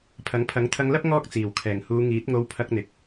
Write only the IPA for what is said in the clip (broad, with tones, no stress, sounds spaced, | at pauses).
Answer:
pʰ ɐ˨˥ ŋ pʰ ɐ˨˥ ŋ t̪ʰ ɐ˧ ŋ l ɐ˥ p̚ ŋ ɔː˥ k̚ t͡s iː˨˩ w kʰ ɛː˨˩ ŋ h uː˨˧ ŋ iː˨˥ t̚ ŋ o˧ w pʰ ɐ˧ k̚ n̪ ɪ˨ k̚